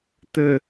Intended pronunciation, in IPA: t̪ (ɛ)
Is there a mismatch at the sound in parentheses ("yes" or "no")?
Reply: yes